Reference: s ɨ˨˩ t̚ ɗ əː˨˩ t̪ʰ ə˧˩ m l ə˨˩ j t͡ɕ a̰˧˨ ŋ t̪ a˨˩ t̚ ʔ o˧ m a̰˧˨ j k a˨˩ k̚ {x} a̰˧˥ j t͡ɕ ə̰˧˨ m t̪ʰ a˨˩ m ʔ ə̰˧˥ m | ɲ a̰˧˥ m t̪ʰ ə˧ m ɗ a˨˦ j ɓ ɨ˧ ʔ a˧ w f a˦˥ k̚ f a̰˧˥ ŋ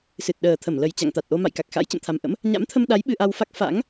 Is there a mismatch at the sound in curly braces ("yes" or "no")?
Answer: no